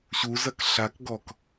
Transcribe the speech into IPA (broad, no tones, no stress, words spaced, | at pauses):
ɕuzɐk ɬakɡɔk